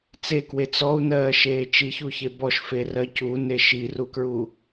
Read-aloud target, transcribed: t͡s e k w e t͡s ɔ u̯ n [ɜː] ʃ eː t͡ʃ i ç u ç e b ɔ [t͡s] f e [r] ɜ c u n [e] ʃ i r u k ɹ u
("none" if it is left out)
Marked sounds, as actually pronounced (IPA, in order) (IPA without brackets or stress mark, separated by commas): ɜː, ʃ, r, e